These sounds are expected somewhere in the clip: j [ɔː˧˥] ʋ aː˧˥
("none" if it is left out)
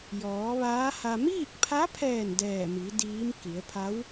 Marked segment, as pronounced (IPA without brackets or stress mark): ɔː˩˧